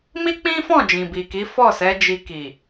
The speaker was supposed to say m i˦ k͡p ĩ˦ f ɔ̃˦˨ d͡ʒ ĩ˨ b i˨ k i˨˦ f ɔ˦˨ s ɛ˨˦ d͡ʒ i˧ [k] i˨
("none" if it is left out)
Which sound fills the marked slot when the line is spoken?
k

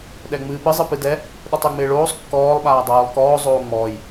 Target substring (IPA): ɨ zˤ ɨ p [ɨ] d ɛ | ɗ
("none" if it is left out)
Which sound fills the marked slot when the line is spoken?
ɨ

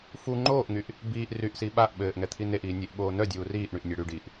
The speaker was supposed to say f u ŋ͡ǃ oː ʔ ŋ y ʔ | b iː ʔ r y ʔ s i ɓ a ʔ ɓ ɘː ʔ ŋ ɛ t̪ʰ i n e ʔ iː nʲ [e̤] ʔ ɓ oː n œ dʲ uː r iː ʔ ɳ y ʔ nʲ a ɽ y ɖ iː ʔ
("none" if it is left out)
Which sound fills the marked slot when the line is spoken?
e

